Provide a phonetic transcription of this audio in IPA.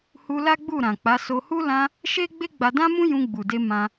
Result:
h u˧ l a˦ ɡ͡b u˦˨ ɾ ã˨ k͡p a˨˦ s o˧ h u˦ l ã˧ | ʃ e˦ ɡ͡b e˦ ɡ͡b a˧ d ã˦ m ũ˦ j ũ˧ ɡ͡b u˨ d e˧ m ã˧

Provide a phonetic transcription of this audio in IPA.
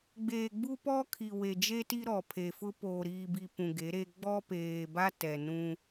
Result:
ɡ͡b eː˨ ɡ͡b u˦ p ɔ˦ kʰ i˨ w e˨ d͡ʒ e˦ t i˦ ɾ ɔ˨ pʰ e˨ f ʊ˦ p oː˨ ɾ iː˨ b i˨ p ũ˨ ɡ e˨˦ ɾ e˦ ɡ͡b ɔ˦ p eː˨ b a˦ t ɛ˨ n ũ˦

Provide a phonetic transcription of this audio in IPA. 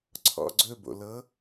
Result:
ǀʰ ɔ̰ ɡ͡ǀ ɵ b o̰ l ɤ

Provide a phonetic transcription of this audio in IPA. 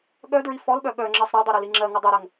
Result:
ɠ œ d ɹ i f ɔ l ɓ œ ɠ œ ŋ͡ǁ ɜ sˤ ɾ œ dˤ u ɾ œ l i ŋ͡ǁ ɜ ŋ u dˤ e ɾ ɜ ŋ

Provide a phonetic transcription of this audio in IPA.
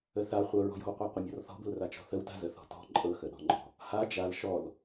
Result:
ə θ a χʷ ɤ ɹ ɔ̤ j ɔ̤ w qʷ a qʷ ə mʲ ɔ r θ ɔ̤ b ə̤ l r a t͡ʃ ɔ̤ θ ə w t a̤ z ə θ ɔ̤ t ɔ̤ ǃʼ ɤ x ə ɗ ɔ̤ ŋ͡ǃ ɔ̤ | h a d͡ʒ a l ʃ ɔ l

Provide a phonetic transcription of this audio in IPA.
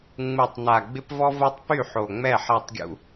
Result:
ŋ͡m u˨ tˤ n a˨ ɡ͡b ɪ˦ p v ɔ˦ v o˦ tˤ p y˦˨ ħ o˨ ŋ͡m ɛ˦˨ ħ a˦˨ tˤ ɡʲ ṵ˦

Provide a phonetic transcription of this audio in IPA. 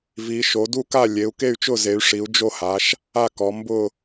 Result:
v i˩˧ ʃ o˩˧ d u˦˨ k a˦˨ lʲ e˩˧ u̯ k e˦˨ y̯ t͡ʃ ʊ˦˨ z e˩˧ y̯ ʂ i˩˧ u̯ d͡ʒ o˦˨ h a˩˧ ʃ | a˦˨ k ɔ˩˧ m b ʊ˦˨

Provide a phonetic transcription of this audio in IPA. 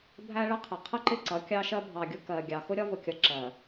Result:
bʱ æ˦ ɭ ə˦ qʰ ɪ˨ qʰ ə˦ ǃ ɪ˦˨ ǀ ʌ˨˦ kʲ ɑ˦ ʃ ɜ˦ bʱ ɑ˨ ɡʲ ʊ˦ k ɜ˨ ɡʲ ɑ˨ x ʊ˦ ɾʲ ɒ˦ v ʊ˨ kʲ ʌ˨ ǁ ɜ˨

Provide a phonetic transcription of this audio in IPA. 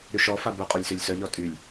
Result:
ɾ y ʃ ɔ f a b œ qʼ o lʲ s ø lʲ s œ ʎ ɔ tʼ y lʲ

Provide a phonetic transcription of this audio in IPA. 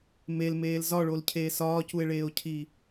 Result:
m e l m eː l z ɒ ɭ o l cʰ eː s ɒː c u e̯ ɭ eː o̯ cʰ i

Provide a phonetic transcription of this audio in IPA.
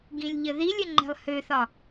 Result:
ɡ ĩ lʲ ʎ ə ð i lʲ ə ŋ͡ǃ ɛ̤ lˠ h ø θ ɒ

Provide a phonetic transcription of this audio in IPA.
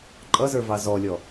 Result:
ǃʼ ʌ z ə˞ v ɑ z ɔ lʲ ɔ

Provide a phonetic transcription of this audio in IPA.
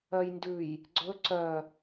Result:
œ j n d ʉ j | ɡ͡ǀ ɵ ǀ œ

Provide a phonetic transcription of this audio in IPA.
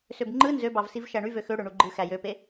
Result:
s ø b ŋ͡ǃ ɯ n z ø b ɑ v s i v ʃ æ ɳ y v ø x ø ɽ ø ɳ u ɡ͡ǃ ɯ x æ j ø p e

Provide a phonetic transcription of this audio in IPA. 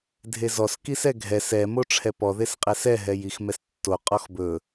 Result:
dʱ e z ɔ s k i s ɛ ɡʱ ɛ s ɛ m o ʈ͡ʂʰ ɛ p ɔ ð e s qʼ ɛ s ɛ ɦ ɛ j i x m ɛ s tː o qʼ ɔ x b ɵ

